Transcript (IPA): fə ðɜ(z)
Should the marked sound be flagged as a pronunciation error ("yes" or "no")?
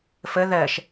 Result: yes